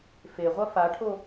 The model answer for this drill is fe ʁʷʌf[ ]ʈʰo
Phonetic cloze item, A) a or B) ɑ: A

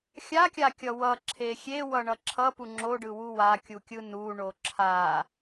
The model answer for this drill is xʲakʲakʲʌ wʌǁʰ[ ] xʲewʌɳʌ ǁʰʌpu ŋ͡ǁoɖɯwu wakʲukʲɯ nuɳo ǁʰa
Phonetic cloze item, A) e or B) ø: A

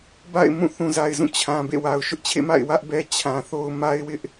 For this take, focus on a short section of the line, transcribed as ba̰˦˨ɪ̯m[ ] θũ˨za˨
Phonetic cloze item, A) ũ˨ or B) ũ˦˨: B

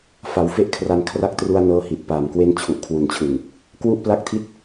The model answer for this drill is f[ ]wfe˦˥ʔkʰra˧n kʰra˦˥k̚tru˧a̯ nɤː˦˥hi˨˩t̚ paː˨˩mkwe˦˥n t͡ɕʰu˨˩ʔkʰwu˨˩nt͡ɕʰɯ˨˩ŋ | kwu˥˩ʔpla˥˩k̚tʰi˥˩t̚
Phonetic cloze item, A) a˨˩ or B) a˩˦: B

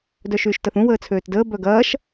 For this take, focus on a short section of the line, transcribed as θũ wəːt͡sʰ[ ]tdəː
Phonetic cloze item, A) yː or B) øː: B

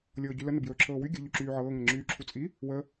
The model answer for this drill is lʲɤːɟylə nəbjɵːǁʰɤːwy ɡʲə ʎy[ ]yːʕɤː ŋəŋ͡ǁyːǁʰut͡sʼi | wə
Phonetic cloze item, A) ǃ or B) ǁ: B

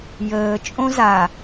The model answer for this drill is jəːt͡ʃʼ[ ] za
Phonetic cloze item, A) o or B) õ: B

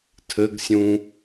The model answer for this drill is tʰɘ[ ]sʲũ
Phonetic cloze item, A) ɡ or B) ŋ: A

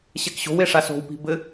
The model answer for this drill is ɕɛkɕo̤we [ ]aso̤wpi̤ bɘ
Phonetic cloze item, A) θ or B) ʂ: B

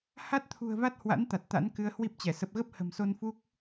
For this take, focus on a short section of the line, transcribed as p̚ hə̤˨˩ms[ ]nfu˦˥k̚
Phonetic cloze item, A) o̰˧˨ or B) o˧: B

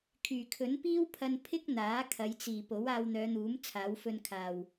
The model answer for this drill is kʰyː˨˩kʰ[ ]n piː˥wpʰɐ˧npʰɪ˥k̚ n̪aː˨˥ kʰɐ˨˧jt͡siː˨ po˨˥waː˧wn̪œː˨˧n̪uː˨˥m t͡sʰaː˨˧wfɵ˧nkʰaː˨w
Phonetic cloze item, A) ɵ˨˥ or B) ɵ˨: A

